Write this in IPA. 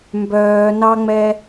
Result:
mbœːnɑŋ͡mɛ

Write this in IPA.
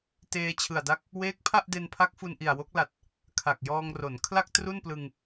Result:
teː˧t͡ɕʰɯ˨˩a̯da˦˥k̚ | weː˦˥k̚pʰa˥˩ʔde˧npʰa˦˥k̚ fu˧nʔi˨˩a̯wo˦˥k̚la˨˩t̚ | kʰa˨˩k̚jɔː˧ŋro˩˦n kʰla˥˩k̚ tru˥˩nplɯ˧ŋ

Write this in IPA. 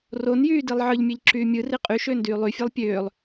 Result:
ronjyːdilˠ ʕɯʎmʲeʎǁyː mʲɯri qʼyʃøːndyː lˠyfʲelˠ pʲøːlˠ

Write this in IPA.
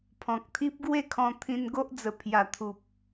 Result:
pʰɔ̃˨k̚t̪ʰi˦p̚ ɡwe˥˧kʰɔ̃˧t̪ʰĩ˧n ɡo˦ʔd͡zə˨˩ pʰja˨˩t̪ʰu˨p̚

